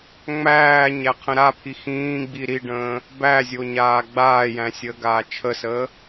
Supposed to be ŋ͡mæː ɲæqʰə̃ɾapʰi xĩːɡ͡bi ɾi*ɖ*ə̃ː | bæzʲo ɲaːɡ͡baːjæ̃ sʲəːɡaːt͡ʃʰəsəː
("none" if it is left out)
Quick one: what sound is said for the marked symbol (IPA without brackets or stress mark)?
ɖ